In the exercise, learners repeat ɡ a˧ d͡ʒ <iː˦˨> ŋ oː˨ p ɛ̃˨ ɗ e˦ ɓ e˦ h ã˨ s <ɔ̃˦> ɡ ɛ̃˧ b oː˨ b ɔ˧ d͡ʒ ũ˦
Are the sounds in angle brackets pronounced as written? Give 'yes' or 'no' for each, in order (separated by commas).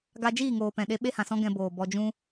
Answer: yes, yes